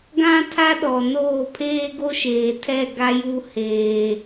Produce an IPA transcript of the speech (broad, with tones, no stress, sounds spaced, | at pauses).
ɡ ã˦ tʰ a˦ ɗ ɔ˨ n oː˦˨ pʰ eː˦ ɡ o˦ ʃ eː˨ tʰ ɛ˦˨ ɡ a˦ j u˦ h eː˦